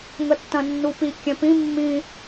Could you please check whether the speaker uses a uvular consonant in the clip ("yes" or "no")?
no